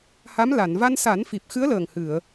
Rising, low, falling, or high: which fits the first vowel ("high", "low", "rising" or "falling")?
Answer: rising